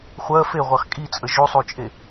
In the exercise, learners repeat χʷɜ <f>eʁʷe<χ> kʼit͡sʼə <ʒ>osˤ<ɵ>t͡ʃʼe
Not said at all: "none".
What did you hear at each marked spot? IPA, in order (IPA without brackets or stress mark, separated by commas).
f, χ, ʒ, o